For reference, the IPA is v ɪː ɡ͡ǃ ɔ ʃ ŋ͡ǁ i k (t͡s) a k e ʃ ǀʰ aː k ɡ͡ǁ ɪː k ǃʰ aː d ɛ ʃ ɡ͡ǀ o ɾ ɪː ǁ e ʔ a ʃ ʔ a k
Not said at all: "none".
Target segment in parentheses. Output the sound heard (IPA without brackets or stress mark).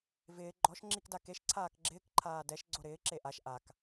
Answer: d